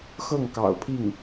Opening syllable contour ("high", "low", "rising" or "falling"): falling